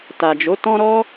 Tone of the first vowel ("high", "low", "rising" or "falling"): low